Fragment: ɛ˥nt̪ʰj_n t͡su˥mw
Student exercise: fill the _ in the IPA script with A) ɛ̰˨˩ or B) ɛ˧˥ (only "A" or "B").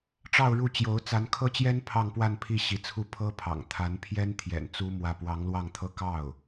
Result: A